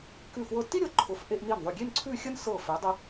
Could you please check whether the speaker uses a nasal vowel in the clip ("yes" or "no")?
no